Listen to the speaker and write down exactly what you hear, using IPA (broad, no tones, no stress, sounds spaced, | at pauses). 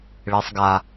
ɭ e sˤ ɡ a